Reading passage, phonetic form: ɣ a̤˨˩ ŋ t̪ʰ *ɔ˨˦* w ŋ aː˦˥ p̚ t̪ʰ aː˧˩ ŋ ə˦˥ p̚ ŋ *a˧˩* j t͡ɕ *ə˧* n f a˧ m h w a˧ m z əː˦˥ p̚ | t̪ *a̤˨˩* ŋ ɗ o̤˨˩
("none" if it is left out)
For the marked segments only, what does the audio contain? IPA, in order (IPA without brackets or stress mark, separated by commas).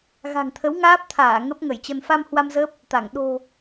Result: ə˨˦, ə˧˩, ə˧, a˧˩